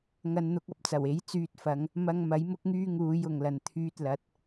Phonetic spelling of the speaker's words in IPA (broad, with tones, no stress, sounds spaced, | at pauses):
ŋ ɐ˨ n n̪ ʊ˨ k̚ ɐ˥ p̚ t͡s ɐ˨˩ w e˨˥ j t͡s yː˧ t̚ f ɐ˨˧ ŋ | m ɐ˧ ŋ m ɐ˨˥ j m ʊ˥ k̚ ŋ yː˥ ŋ uː˨˧ j ʊ˨˩ ŋ l ɐ˨˩ n t̪ʰ yː˧ t̚ l ɐ˨˥ t̚